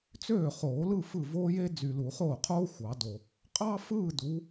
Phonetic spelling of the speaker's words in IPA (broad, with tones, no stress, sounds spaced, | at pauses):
t͡s øː˥˩ χ oː˨˩˦ l ɯ˥˧ f ɯ˥˩ v oː˥ j e˥ d͡z y˨ l u˨˩˦ χ oː˥˩ qʰ oː˥ xʷ ɑ˨˩˦ d o˨ | qʼ ɑ˥ f ɯː˥˧ d u˨˦